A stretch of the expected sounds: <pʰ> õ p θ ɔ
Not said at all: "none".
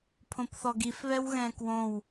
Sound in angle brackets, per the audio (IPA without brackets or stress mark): pʰ